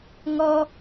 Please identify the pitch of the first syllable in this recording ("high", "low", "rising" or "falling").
high